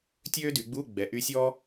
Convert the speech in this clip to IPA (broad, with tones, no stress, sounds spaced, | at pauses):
tʲ øː˥ d y˩˧ ɡ͡b uː˧˥˧ ɡ͡b ɛ˩˥ ʔ y˧˥ sʲ ɔː˥